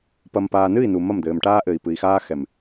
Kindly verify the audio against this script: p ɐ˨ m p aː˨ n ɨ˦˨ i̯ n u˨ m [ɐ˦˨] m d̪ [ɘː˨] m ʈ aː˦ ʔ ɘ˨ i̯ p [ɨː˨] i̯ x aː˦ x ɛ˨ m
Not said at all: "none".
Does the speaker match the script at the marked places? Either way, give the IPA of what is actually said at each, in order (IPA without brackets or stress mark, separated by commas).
ɐ˦˨, ɘː˨, ɨ˨